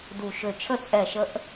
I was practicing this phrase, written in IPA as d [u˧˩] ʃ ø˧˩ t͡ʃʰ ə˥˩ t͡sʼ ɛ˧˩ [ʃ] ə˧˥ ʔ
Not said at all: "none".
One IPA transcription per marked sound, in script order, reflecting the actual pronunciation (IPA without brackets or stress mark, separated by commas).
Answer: u˧˩, ʃ